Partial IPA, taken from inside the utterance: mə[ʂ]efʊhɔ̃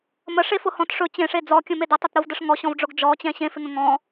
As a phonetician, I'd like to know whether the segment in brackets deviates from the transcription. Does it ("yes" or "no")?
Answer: no